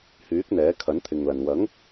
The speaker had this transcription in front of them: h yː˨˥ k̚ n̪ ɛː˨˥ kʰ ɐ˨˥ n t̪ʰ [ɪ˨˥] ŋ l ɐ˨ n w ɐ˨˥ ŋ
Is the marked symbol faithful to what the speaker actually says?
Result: no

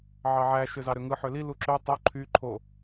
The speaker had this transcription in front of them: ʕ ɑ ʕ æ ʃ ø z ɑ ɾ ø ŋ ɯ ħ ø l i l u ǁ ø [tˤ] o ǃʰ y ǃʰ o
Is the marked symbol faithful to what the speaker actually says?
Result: yes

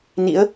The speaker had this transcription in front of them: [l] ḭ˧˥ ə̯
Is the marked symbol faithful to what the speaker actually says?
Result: no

